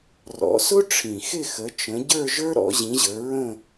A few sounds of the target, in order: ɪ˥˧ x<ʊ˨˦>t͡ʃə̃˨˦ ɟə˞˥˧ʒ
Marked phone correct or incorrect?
incorrect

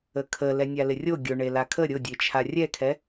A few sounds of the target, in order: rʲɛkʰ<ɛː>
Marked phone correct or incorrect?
incorrect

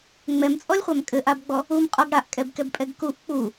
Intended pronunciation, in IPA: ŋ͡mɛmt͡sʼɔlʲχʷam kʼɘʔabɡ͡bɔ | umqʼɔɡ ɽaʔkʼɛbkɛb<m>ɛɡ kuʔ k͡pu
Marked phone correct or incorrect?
incorrect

